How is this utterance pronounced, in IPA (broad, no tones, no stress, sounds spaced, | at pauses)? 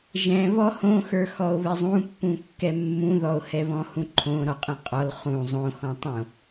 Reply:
ʒ ɛ̃ β ɔ h õ x ə˞ x ɔ o̯ β ɛ zˤ ũ pː ũ kː ɛ mː ũ ð ɔ o̯ h ɛ β ɔ̃ h ũ ǃʰ õ ɾ ɔ qʼ ɛ̃ qʼ ɔ l χ ũ zˤ õ x ɔ̃ tˤ õ